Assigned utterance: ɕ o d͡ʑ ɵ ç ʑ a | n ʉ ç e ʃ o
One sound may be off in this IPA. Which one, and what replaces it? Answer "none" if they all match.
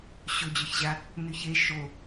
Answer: none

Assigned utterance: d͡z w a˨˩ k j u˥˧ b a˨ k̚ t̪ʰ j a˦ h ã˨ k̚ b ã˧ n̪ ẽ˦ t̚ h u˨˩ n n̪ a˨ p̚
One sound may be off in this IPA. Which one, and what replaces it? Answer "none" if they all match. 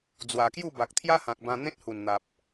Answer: none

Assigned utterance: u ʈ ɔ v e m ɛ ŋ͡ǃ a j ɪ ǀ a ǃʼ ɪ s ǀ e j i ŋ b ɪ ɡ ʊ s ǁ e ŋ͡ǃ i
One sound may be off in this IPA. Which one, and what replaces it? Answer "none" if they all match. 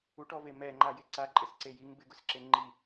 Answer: none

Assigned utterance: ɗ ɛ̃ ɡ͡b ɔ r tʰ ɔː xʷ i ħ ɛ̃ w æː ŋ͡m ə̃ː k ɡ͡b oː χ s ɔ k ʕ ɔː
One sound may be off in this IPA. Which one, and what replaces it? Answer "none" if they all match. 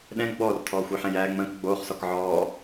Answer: w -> j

